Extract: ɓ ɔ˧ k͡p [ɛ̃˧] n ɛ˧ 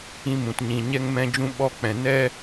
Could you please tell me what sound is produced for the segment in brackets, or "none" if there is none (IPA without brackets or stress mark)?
ɛ̃˨